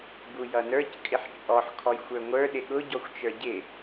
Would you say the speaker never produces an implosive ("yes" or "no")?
no